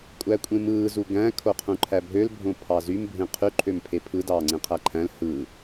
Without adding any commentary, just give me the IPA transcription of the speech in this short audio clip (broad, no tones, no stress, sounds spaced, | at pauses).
kʷʼ æ kʷʼ ẽ m ɯː z u ɡ æ̃ kʰ o qʰ ũ ǃʰ æ bʱ ø l bʱ õ pʰ ɑ z y m bʱ ẽ qʰ y ǃʰ ø m pʰ e pʰ ɯ d ɑː ŋ͡ǀ ẽ qʰ æ ǃʰ æ̃ l h ɯː